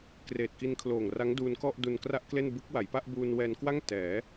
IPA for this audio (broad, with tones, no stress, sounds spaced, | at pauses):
k r eː˨˩ t̚ k i˧ n kʰ l oː˨˩ ŋ r a˦˥ ŋ d uː˧ n k ɔ˥˩ ʔ d u˧ n k r a˥˩ ʔ k l e˥˩ n b ɯ˦˥ k̚ w a˩˦ j p a˥˩ ʔ b uː˧ n w ɛː˧ n k w a˥˩ ŋ t ɛː˩˦